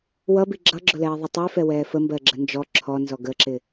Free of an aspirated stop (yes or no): no